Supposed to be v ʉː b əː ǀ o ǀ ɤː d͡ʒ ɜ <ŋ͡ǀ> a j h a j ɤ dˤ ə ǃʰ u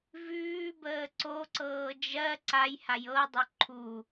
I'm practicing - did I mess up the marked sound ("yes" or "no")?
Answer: yes